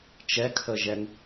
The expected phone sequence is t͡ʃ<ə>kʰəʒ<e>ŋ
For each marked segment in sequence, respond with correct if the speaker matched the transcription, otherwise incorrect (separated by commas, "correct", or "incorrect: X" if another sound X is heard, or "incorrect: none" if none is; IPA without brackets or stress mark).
incorrect: ɛ, incorrect: ɛ